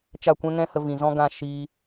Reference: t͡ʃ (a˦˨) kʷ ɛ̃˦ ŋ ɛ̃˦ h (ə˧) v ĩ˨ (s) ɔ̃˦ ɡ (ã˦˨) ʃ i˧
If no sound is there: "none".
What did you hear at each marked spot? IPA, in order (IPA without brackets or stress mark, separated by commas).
a˦˨, ə˧, z, ã˦˨